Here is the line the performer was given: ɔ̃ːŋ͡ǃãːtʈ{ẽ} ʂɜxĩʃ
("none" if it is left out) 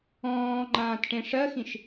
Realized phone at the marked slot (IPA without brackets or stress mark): ẽ